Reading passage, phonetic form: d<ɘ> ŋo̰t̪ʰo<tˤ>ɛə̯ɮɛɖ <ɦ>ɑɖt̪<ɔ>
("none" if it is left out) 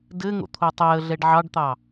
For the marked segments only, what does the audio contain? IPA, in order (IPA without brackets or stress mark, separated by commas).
ɘ, tˤ, ʕ, ɑ